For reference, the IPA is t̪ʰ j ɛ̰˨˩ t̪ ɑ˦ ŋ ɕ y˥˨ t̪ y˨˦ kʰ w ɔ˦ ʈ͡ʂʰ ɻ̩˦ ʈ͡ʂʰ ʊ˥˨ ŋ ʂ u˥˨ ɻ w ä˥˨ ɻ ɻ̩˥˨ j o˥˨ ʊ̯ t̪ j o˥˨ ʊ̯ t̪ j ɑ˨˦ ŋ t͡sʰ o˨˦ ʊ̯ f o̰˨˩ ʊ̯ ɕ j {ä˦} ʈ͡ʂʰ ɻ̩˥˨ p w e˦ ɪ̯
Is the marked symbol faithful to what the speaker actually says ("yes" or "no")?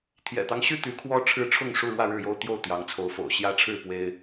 yes